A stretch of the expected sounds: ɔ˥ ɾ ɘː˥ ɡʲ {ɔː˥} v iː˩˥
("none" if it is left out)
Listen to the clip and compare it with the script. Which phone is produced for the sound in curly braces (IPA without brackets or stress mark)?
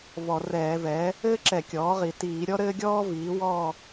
ɔː˥